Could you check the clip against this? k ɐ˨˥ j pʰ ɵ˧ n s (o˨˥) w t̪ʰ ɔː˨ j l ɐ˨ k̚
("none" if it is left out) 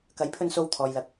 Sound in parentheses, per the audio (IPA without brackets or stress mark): o˧